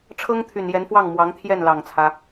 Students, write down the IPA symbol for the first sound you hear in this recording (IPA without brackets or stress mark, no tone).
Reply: ʈ͡ʂʰ